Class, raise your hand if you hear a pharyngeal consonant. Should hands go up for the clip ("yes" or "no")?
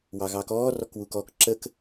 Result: no